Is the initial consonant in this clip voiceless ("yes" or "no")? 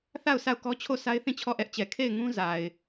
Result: yes